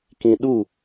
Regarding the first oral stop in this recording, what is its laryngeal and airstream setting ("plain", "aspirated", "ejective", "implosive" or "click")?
plain